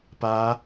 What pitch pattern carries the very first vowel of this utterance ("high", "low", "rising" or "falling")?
rising